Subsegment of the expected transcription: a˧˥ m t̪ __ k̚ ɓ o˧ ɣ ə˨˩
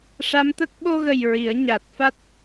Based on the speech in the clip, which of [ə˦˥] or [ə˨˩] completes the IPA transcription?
ə˦˥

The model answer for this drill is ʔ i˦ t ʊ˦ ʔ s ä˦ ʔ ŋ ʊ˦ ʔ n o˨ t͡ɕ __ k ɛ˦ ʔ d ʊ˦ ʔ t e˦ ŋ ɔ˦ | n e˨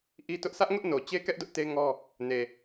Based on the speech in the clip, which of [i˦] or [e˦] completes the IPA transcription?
e˦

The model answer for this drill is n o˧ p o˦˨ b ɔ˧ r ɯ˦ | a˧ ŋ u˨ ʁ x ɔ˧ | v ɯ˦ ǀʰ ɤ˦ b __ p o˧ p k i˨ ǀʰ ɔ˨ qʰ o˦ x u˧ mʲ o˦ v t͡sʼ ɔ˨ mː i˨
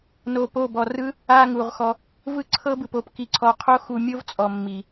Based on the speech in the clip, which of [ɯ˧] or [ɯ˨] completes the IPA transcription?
ɯ˨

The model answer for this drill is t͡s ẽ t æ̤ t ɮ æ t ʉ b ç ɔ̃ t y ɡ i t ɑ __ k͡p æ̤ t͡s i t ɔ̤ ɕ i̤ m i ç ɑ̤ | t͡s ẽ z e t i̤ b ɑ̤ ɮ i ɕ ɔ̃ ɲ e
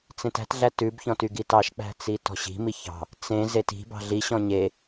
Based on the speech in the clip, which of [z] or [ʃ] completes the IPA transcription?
ʃ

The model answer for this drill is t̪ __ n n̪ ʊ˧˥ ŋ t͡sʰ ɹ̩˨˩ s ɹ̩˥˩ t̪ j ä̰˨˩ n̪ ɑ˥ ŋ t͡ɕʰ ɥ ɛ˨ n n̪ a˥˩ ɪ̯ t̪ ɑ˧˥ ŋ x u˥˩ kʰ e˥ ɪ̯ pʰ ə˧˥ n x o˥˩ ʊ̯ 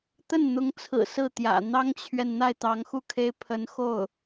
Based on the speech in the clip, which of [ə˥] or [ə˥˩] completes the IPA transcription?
ə˥˩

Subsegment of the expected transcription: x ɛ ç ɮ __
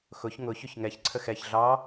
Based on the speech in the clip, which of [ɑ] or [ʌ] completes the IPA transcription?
ɑ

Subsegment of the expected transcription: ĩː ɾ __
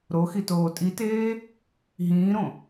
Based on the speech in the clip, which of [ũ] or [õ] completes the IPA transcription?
õ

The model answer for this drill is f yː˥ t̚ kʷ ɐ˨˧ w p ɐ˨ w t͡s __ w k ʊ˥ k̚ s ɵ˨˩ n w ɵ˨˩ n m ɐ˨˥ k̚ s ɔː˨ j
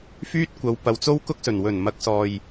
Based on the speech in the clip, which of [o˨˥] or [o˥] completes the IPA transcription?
o˥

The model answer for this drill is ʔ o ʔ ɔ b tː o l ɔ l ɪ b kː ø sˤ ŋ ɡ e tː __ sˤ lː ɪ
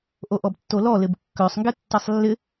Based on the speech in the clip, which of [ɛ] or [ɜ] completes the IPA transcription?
ɛ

